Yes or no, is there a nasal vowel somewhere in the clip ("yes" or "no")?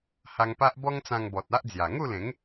yes